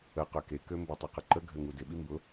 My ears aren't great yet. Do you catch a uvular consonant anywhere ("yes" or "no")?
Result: yes